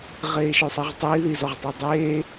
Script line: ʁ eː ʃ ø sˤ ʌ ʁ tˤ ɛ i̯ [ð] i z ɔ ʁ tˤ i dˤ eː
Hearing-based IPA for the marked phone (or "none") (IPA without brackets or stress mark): ð